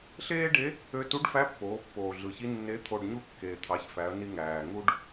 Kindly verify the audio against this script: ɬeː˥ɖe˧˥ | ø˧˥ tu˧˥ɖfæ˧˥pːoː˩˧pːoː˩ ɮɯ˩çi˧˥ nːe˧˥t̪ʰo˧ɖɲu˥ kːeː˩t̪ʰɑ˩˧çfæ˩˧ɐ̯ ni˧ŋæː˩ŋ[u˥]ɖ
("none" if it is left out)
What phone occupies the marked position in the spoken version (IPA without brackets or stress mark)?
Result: u˥